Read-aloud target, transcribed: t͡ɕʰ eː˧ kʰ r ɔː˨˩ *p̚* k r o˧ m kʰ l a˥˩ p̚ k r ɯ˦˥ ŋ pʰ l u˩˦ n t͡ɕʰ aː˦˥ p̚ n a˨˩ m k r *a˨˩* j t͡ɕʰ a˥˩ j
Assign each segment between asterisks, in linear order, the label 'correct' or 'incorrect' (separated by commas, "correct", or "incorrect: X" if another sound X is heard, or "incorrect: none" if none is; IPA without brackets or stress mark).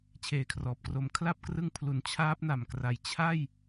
correct, correct